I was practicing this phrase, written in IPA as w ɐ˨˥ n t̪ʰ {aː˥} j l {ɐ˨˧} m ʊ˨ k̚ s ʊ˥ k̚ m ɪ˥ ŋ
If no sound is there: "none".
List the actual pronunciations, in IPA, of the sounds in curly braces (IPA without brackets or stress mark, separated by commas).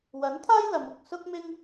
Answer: aː˥, ɐ˨˧